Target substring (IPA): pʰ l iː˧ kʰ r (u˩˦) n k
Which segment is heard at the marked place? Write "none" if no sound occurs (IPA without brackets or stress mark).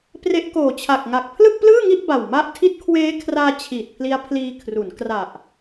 u˩˦